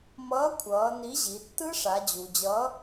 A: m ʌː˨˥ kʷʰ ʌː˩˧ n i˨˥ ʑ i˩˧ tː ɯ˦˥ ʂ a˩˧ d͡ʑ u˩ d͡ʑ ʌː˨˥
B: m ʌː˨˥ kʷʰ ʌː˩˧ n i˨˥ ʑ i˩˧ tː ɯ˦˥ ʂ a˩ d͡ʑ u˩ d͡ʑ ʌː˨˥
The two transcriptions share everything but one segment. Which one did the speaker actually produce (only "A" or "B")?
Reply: A